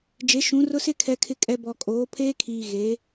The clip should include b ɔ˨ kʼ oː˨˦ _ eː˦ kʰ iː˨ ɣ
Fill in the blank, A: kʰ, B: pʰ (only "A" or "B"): B